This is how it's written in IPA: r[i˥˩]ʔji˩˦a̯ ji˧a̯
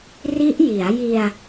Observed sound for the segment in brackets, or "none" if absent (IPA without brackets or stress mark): i˦˥